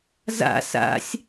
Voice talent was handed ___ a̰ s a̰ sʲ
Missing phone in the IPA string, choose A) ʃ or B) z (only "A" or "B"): B